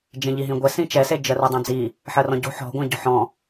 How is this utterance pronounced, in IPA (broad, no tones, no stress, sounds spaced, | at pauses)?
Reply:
d͡ʒ ẽ ʎ i ɦ ĩ ɡʷ ɛ s ĩ t͡ʃ ɛ s e d͡ʒ ɜ r o dˤ ã d͡z i | ħ ɜ r ɔ̃ ɟ o̤ ħ ɔ̤ ɡʷ ã ɟ ɔ̤ ħ ɔ̃